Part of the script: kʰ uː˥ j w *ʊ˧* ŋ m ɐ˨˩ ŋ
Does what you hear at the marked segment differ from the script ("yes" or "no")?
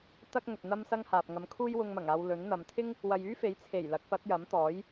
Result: no